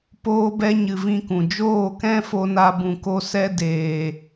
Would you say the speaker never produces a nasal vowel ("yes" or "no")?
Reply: no